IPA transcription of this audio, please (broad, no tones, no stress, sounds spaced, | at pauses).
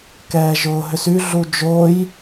k ɛː ʒ ʊː ɦ ʏ s y ɮ u d͡ʒ o j